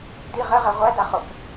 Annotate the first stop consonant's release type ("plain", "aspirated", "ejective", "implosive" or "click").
plain